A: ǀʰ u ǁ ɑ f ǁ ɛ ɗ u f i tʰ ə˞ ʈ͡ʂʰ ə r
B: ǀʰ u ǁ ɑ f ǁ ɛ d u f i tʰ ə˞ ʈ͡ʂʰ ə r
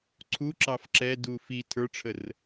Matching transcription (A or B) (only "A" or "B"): B